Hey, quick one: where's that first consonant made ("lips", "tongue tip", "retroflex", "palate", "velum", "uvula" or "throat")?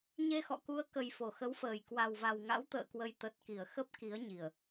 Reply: palate